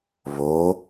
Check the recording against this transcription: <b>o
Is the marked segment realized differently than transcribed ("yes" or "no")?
yes